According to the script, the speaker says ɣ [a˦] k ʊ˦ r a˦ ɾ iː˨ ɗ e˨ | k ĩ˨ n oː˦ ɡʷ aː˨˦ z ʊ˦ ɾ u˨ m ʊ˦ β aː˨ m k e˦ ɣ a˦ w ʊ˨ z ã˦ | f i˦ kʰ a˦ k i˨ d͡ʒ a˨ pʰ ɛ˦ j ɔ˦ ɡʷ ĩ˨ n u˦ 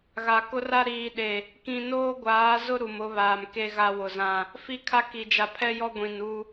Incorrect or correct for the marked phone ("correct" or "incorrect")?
incorrect